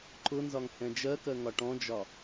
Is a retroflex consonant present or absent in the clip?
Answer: present